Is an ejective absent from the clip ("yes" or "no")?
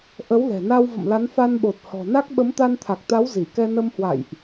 yes